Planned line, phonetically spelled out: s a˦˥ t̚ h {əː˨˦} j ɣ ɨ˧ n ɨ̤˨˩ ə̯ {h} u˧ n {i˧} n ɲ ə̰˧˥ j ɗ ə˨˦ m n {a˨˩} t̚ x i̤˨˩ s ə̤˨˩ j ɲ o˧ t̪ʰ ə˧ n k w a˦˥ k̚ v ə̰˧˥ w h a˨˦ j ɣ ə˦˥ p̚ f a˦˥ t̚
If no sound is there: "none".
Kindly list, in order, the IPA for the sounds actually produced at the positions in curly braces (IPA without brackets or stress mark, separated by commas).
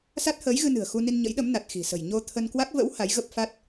əː˨˦, x, i˧, a˨˩